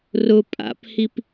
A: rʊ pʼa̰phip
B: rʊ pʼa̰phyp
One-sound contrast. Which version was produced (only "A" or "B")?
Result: A